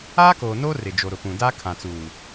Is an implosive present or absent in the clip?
absent